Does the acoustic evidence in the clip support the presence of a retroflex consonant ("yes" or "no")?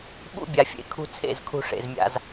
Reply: yes